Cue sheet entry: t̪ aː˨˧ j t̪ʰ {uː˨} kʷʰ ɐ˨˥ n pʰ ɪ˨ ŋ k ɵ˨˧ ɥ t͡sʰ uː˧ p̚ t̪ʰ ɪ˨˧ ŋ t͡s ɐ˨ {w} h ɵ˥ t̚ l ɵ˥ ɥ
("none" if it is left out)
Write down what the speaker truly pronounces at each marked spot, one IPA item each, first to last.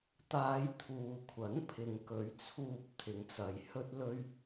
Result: uː˨, j

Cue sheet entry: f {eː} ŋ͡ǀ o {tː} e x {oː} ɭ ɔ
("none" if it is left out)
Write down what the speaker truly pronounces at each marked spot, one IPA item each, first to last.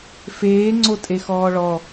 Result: eː, tʼ, ɔː

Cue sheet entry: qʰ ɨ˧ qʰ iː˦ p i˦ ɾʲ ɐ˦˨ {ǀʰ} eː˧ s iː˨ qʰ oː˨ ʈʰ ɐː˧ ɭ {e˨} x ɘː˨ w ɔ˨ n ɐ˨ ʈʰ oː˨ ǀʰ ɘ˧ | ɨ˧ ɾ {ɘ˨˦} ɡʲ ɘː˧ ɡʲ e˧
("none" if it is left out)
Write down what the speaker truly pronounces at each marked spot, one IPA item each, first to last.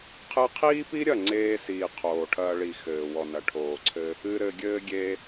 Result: ŋ͡ǀ, i˨, ɘ˧

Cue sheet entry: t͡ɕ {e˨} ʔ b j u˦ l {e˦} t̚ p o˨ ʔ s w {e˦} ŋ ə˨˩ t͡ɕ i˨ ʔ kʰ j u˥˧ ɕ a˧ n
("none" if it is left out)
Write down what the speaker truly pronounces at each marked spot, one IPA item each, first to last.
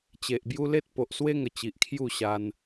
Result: e˨, e˦, e˦

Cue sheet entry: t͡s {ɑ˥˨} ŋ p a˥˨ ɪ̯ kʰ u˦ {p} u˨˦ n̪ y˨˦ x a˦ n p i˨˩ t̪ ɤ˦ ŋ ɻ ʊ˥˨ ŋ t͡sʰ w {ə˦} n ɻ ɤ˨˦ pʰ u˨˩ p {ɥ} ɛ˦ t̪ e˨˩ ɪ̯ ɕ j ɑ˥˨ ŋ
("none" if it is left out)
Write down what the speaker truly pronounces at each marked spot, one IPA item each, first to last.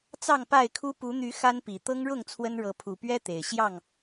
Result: ɑ˥˨, p, ə˦, ɥ

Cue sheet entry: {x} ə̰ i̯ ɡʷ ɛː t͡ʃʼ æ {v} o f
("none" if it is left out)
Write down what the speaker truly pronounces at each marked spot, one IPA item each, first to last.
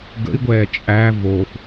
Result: ɡ, v

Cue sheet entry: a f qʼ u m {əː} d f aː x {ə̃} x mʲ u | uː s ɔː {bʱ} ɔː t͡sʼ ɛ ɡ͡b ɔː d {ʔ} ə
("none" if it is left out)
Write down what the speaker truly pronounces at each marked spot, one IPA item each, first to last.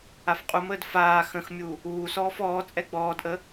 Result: əː, ə̃, f, ʔ

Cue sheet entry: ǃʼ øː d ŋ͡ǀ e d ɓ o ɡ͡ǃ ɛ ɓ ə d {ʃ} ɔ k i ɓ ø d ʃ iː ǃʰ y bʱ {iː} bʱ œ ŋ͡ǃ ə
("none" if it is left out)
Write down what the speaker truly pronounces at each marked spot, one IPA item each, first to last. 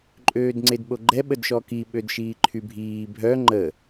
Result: ʃ, iː

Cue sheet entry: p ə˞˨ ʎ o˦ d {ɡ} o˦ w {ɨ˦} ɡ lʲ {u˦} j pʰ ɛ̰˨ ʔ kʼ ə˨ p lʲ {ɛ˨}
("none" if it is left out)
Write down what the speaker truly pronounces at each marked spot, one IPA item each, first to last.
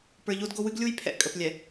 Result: ɡ, ɨ˦, u˦, ɛ˨

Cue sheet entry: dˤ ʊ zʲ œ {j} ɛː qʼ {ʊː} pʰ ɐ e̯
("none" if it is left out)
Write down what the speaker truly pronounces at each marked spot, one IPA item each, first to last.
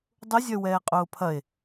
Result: w, ʊː

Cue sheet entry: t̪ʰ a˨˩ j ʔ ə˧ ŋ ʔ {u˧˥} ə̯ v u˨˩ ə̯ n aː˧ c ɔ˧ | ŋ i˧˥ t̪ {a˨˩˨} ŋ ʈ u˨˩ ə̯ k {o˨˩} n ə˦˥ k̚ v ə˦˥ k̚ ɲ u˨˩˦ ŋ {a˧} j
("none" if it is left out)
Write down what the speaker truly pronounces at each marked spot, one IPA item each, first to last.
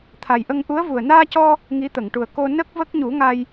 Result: u˧˥, ə˨˩˨, o˧, a˧

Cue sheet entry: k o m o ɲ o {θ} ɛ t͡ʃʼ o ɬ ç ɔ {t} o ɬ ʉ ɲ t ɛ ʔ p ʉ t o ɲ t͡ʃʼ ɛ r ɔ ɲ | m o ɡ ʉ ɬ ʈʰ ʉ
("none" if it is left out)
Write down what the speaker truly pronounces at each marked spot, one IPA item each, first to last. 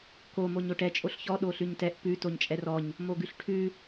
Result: ʈ, ɗ

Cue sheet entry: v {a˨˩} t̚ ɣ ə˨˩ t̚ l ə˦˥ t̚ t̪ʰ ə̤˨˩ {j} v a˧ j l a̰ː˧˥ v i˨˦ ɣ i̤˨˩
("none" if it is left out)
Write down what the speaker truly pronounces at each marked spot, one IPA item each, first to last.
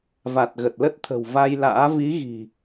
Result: a˨˩, w

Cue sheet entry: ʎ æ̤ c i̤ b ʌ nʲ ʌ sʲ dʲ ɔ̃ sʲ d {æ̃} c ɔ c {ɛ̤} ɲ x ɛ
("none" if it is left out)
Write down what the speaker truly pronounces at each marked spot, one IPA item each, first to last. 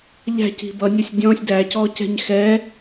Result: æ, ɛ̤

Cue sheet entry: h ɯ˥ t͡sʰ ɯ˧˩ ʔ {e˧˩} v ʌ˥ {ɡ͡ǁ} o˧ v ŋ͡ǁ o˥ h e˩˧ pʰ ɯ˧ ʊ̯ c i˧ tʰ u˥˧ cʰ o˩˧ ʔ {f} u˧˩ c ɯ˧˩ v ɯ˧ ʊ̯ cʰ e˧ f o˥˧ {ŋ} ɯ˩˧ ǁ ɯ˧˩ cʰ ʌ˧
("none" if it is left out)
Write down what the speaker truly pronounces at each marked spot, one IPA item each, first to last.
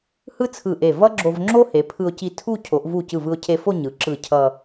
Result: e˧˩, ɡ͡ǁ, v, ɲ

